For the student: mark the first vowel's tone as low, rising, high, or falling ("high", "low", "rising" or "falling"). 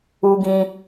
high